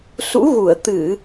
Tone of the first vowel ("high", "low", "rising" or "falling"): rising